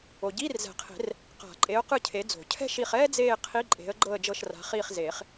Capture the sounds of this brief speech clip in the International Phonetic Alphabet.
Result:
o˨ɟiː˧˥˧rzɛ̤˨˩˦qʰe̤˨˩˦r | qa̤˨˩˦ ǃʼe˨˥ʊ̯qɯ˦˨ cʰe˨˥d͡zo̤˨˩˦ cʰɛ̤˥ʃi˦˨χ ɛː˥d͡zeː˦˨ qʰi˧˥˧ǃʼe̤˨˥ə̯ɡ͡ǃɤ˦˨ə̯ d͡ʒɤ˦˨ʃra̤˨˥χiː˦˨χ zeː˨˩˦χ

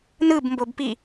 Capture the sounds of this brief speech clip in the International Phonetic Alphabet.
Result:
nɯbmbobpi

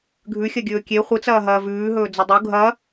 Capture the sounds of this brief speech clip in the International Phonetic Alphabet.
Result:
ɡʱʉxʲɐɡʲɵː kʲe χʷɨt͡sɐːɦɐː vʉːɦɵːd͡zɵ dˤu ɡʱɐ

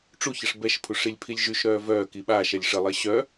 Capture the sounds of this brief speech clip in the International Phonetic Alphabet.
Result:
ʈ͡ʂuçəʂ bɛʃpʰuʂ ilʲpʰilʲʒyʃɾœː vœː kiɓaːʃɛlʲ ʂəlˠe ɕœ

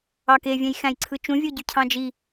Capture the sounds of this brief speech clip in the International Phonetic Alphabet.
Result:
ɑkevʲæ̃j xæ̃jǀʰɯt͡ʃũvʲo ɟycʰɑ̃d͡ʒi

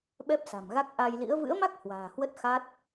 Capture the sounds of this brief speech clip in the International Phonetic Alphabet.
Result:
ɓɛ˦˥p̚sa̤˨˩mɣa˦˥k̚ ʔa˧jlḭ˧˥ə̯ vɨ̰˧˥ə̯ma˦˥k̚ hwa̤ː˨˩hwə˦˥t̚ xa˦˥t̚

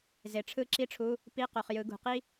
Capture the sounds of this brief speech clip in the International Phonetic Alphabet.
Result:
ze˨ʈ͡ʂʰɯ˥˩ǁi˥ʈ͡ʂʰu˧˥˧ | pi˧˥˧qo˨χ jɯ˨˦ɡṳ˨qi˥

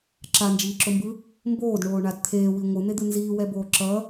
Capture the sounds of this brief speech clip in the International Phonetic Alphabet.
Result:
ǁand͡ʒiːǁombɯ | mboːdɳoːɳad t̪ʰeːwi ŋʷɯn̪ed̪ɯ nziːwɛboː ǁʌ

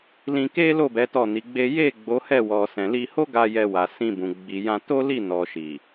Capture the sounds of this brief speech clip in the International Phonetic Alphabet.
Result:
lĩ˧ke˦lo˦˨ bɛ˨˦tɔ˦˨ni˨˦ɡ͡be˦ je˦˨ ɡ͡bo˨˦hɛ˦˨wɔ˨sɛ̃˨ li˧ho˦ɡa˧ jɛ˧wa˨ sĩ˧bũ˨ ɡ͡bi˨ jã˧to˦ li˦˨nɔ˨ʃi˨

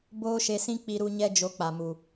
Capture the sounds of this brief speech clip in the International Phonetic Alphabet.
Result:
boː˦ʃe˧sĩ˦ k͡pi˦ɾu˦ ɲɛ˦d͡ʒo˧k͡pa˨mu˨

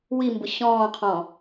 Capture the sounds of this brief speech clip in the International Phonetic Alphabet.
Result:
wimbʊ ɕɔ̃ːqʰɔ̃

